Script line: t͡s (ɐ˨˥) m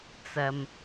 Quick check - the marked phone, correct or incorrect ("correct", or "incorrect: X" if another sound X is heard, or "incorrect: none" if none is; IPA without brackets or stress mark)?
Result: incorrect: ɐ˧